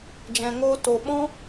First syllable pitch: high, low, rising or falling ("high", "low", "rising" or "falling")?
low